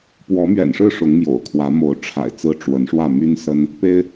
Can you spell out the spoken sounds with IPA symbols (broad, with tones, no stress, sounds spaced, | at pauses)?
p w ɔ˨˦ m ɥ ɛ̰˨˩ n ʂ ɻ̩˥˨ ʂ ʊ˨˦ ŋ m j o̰˨˩ ʊ̯ kʰ w ä˨˦ m o˨˦ ʊ̯ ʈ͡ʂʰ a̰˨˩ ɪ̯ t͡s ɹ̩˦ ʈ͡ʂ w ə˨˦ n ʂ w ä˥˨ m y˦ n s ə˦ n | p e˦ ɪ̯